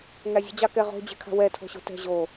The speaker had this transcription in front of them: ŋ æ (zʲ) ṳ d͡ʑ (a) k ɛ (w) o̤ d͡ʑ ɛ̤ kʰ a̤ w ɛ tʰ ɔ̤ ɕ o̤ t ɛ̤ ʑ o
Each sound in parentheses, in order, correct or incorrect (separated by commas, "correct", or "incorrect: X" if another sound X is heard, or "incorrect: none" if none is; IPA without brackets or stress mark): correct, incorrect: ɑ, incorrect: ʁ